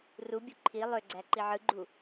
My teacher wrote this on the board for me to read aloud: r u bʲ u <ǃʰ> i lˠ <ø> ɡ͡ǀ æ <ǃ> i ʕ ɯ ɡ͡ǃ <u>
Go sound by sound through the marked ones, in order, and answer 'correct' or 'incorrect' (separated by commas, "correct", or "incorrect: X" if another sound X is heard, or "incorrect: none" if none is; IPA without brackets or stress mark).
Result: correct, correct, correct, correct